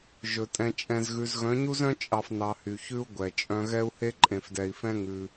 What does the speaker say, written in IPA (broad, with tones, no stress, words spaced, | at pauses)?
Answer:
ʒɵ˨tʼɛ̃˧t͡ʃʼɛ̃˧zɣʉ˧z ɣœ̃˨˦ɲu˦zœ̃˦ t͡ʃʼɑ˧f nɑ˧hy˨ çʉ˦u̯ ɡʷɛ˨ t͡ʃʼœ̃˧ɣɛ˦u̯he˦ ǃʼẽ˨fdɛ˨i̯fɛ̃˦ ŋʉ˧